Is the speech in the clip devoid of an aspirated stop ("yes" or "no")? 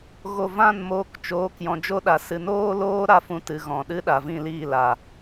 yes